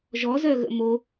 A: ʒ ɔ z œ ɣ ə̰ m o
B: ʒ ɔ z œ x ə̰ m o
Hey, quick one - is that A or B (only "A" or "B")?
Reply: A